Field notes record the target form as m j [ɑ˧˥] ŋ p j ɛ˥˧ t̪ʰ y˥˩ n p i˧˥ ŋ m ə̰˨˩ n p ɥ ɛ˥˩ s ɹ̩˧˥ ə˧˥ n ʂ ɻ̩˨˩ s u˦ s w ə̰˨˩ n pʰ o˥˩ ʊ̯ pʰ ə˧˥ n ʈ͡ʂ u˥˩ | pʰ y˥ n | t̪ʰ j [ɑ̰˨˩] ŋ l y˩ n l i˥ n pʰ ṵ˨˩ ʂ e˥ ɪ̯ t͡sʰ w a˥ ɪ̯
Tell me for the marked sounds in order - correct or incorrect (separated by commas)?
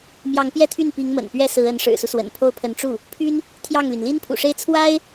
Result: correct, incorrect